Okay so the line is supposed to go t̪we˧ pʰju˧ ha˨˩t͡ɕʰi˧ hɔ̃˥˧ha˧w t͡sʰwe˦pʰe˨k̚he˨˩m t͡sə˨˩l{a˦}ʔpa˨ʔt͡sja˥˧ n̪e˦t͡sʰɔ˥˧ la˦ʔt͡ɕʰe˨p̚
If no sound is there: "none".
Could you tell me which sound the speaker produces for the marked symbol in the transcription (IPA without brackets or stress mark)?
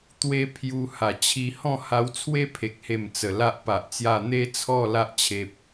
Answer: a˦